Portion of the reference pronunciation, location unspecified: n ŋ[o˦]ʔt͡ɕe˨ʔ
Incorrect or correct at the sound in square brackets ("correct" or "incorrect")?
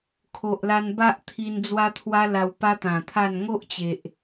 correct